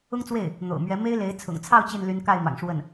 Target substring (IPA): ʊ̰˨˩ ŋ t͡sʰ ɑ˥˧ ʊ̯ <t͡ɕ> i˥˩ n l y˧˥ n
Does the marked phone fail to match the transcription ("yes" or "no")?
no